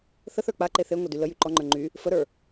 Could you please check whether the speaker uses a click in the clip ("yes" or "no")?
yes